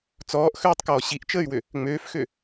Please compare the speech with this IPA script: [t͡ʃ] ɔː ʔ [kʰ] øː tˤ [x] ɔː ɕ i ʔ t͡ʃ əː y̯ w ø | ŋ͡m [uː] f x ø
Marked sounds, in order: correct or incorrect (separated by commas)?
incorrect, incorrect, incorrect, incorrect